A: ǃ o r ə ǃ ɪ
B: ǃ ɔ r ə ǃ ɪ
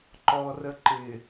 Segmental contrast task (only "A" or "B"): B